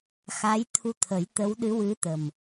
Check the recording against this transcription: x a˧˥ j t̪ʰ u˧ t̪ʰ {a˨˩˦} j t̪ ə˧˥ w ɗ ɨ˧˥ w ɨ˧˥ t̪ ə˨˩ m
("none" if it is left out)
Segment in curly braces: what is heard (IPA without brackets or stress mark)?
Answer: ə˨˩˦